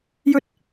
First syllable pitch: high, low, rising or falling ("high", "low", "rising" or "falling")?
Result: high